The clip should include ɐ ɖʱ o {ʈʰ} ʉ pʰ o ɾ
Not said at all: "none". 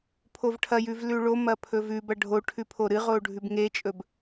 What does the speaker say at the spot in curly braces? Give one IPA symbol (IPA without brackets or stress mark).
ʈʰ